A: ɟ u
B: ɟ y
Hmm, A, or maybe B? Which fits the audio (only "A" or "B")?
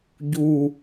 A